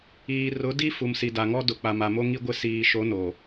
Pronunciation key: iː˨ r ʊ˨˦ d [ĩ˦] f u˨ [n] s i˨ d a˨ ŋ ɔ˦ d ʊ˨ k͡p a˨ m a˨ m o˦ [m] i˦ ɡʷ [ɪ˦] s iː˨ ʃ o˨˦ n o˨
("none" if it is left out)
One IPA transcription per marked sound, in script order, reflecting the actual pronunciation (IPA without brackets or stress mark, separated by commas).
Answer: i˦, m, ŋ, ɪ˦